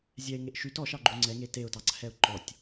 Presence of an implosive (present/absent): absent